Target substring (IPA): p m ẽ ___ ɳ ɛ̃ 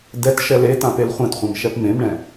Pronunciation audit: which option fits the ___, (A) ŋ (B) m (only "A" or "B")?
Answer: B